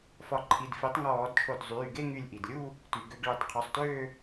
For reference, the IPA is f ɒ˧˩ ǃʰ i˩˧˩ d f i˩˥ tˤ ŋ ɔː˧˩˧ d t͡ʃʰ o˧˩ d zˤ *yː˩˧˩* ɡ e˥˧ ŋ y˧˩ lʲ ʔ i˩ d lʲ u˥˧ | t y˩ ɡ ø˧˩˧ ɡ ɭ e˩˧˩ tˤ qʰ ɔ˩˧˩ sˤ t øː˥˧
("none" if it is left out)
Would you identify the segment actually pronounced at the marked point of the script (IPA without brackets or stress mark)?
yː˩˧˩